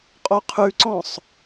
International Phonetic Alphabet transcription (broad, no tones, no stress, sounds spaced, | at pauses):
qʼ o qʰ ʉ ǀ ɔ̃ sˤ